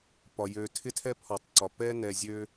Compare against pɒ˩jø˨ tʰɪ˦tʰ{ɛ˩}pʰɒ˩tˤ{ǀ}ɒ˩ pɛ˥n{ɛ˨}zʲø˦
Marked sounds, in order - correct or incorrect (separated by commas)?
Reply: incorrect, correct, correct